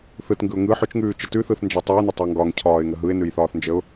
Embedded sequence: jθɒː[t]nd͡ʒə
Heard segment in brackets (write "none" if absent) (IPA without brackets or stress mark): θ